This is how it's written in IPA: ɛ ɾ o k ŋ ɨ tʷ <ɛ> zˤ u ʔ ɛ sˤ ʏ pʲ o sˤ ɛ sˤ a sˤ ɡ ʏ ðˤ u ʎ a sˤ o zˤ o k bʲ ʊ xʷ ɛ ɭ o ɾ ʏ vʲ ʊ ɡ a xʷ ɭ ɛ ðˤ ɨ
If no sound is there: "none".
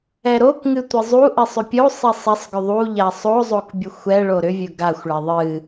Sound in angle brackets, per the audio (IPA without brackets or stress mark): ɨ